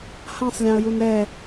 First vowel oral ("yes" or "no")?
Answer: no